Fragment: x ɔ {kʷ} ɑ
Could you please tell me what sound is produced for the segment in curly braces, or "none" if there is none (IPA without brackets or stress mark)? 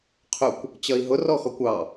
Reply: kʷ